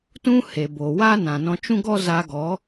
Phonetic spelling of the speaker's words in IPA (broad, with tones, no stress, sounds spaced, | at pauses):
t ũ˦ h e˨ b o˨ w a˦ n ã˨ n ɔ̃˧ t͡ʃ ũ˦ ɡ ɔ˦ z a˧ ɡ ɔ˨˦